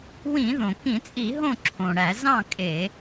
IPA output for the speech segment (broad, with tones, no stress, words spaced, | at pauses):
wĩ˧˩˧ðõ˩kĩ˧˩˧t͡sʼi˧˩˧ ɦõ˥˨ǁʰõ˩ɽæ˧˩˧ zɑ̃˥˨ kʼe˧˩˧